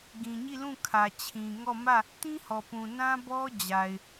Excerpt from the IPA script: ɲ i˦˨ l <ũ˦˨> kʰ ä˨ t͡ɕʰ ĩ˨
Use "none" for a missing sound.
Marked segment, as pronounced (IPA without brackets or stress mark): ũ˦˨